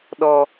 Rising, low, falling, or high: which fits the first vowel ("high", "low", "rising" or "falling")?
low